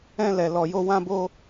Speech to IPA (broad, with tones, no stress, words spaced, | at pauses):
ɛ̃˧lɛ˨ lɔ˨jo˧wã˦bo˦